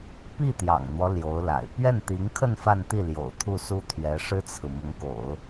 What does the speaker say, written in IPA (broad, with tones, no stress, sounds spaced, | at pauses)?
p i˥˩ t̪ j ɑ̰˨˩ ŋ n̪ w ɔ˦ l j o˧˥ ʊ̯ l a̰˨˩ ɪ̯ p ɥ ɛ˥˩ n t̪ i˧˥ ŋ kʰ ə˥˧ n f a˥˧ n t̪ i˥˩ l j o̰˨˩ ʊ̯ t̪ʰ u˥˩ s u˥ t̪ʰ ɥ ɛ˧˥ ʂ ɻ̩˥ t͡sʰ ɹ̩˨ m ʊ˧˥ ŋ k o̰˨˩˦ ʊ̯